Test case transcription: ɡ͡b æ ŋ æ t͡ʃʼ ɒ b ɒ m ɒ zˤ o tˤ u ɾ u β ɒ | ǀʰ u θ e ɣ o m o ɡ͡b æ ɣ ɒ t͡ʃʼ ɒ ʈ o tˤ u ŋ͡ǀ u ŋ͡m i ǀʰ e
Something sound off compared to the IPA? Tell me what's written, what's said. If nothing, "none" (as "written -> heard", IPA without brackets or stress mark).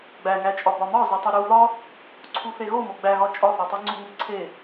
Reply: ʈ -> θ